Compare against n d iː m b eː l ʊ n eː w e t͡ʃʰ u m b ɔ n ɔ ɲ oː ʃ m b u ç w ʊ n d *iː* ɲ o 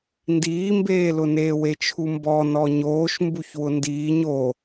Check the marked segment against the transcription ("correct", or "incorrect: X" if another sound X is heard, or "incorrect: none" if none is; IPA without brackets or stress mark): correct